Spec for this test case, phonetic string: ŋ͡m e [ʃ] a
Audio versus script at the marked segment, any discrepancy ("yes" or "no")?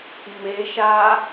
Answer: no